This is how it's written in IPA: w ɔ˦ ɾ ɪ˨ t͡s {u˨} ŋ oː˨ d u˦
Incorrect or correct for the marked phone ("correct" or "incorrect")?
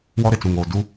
incorrect